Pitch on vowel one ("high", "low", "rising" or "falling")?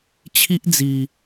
high